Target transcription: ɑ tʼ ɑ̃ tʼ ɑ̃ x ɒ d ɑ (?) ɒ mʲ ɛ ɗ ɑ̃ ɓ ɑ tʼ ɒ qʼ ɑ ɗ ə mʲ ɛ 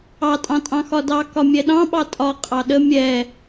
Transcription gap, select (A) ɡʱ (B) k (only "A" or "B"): B